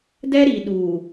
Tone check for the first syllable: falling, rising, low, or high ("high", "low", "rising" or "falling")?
high